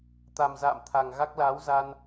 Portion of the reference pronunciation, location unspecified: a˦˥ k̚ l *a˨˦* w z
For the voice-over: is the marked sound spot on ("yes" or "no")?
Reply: no